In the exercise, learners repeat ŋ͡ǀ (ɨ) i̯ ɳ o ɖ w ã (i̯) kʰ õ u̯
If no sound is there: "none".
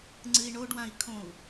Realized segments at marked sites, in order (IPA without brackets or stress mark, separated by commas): ɨ, i̯